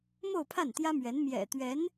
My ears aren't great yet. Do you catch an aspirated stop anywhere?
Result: yes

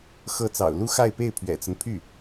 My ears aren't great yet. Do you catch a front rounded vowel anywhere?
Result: yes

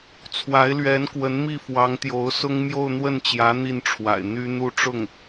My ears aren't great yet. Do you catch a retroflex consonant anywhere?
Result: yes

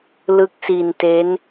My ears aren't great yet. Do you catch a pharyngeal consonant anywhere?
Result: no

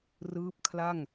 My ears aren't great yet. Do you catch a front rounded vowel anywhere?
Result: no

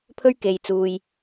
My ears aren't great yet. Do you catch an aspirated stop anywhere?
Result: yes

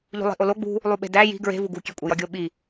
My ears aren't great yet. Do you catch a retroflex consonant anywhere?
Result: no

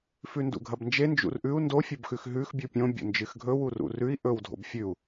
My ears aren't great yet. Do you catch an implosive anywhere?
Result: no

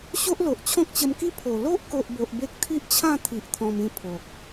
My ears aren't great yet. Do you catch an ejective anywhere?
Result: no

